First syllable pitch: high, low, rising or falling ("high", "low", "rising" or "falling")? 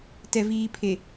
low